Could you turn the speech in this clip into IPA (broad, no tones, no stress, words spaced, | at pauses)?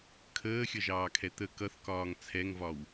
kʰəːxʲʌʒɑːkʰɛ t̪ə kʌθkɒːŋ t͡sʰɛŋvɒw